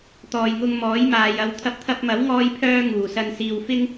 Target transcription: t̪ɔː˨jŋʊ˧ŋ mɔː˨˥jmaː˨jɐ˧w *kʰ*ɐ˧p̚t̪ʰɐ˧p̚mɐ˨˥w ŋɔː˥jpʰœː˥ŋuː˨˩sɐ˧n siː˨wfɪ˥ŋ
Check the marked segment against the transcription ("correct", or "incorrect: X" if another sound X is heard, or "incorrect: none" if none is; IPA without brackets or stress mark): incorrect: t̪ʰ